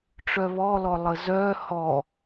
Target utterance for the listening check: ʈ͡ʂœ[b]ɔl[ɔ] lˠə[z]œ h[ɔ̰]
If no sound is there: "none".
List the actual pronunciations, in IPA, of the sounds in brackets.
β, ɔ, z, ɔ

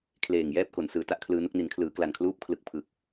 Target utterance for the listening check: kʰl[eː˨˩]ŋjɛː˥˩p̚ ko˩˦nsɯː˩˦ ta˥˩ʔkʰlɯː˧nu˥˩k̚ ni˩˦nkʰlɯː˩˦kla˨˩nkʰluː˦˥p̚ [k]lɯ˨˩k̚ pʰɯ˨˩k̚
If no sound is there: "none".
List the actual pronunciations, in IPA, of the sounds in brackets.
eː˨˩, kʰ

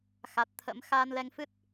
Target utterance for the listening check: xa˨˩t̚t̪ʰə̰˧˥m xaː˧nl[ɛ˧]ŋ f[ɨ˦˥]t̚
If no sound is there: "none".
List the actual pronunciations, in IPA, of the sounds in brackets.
ɛ˧, ɨ˦˥

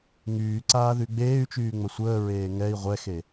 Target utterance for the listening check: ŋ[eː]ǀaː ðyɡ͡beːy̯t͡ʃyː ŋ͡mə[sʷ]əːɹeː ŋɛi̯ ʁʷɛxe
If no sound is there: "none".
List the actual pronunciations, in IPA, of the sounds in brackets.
yː, sʷ

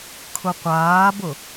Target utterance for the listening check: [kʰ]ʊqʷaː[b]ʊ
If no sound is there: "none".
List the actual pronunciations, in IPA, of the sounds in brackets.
kʰ, b

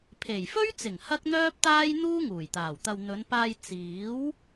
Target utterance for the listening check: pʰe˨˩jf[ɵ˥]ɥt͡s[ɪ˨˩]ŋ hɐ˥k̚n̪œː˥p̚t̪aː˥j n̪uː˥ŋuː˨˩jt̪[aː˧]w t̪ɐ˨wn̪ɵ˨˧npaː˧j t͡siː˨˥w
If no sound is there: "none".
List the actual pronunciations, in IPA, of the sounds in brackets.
ɵ˥, ɪ˨˩, aː˨˩

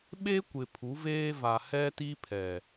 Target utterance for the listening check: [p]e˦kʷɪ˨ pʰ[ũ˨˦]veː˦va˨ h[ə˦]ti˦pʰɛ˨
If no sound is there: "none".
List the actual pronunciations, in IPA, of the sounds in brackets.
ɓ, u˨˦, ɛ˦

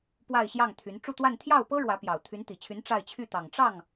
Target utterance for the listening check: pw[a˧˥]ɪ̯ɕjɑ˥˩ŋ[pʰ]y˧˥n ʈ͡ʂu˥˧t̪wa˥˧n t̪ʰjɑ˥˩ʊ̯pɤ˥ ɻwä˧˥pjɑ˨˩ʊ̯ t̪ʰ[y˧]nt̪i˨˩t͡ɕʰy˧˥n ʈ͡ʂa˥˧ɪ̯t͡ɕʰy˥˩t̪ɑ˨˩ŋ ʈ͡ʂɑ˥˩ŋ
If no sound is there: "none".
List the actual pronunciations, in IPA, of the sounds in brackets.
a˥˧, t̪ʰ, y˧˥

